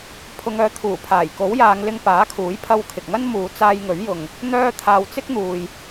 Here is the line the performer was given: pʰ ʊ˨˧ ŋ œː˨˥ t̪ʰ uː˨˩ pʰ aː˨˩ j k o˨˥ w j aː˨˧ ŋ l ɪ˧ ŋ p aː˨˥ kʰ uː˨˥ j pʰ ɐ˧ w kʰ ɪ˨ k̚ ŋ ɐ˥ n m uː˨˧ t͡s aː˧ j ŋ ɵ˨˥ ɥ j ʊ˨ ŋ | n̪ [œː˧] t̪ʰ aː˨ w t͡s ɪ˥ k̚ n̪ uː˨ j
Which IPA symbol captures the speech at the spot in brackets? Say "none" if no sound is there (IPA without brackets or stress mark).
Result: œː˧